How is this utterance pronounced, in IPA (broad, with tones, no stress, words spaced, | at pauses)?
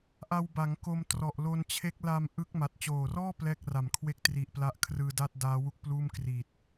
ʔa˧wba˩˦ŋ ko˧mtrɔ˨˩ʔlo˧nt͡ɕʰe˦˥k̚ la˧m ʔɯ˦˥k̚ma˨˩t̚ t͡ɕoː˨˩rɔː˥˩ plɛː˥˩k̚ra˨˩mkʰwe˥˩k̚ tri˨˩ʔpla˦˥ʔkʰrɯː˧ da˥˩t̚daː˦˥wu˦˥k̚pluː˥˩m kri˨˩t̚